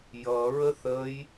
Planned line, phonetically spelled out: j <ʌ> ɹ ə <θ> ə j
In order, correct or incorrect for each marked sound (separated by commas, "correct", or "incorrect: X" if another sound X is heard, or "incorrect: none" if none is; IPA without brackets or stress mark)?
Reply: correct, correct